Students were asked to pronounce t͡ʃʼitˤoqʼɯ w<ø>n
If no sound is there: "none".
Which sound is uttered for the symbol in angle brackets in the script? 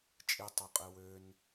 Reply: ø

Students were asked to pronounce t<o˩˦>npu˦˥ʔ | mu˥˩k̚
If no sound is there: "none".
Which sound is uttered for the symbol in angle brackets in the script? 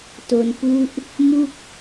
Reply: o˧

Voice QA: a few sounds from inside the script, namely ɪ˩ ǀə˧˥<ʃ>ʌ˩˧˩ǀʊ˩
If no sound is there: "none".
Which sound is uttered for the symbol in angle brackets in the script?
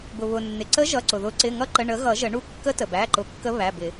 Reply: ʒ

